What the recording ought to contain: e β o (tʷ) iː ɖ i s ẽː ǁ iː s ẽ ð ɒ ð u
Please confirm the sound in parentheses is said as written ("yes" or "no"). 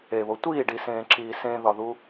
yes